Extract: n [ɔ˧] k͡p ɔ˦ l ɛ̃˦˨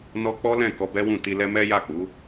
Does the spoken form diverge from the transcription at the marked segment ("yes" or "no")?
no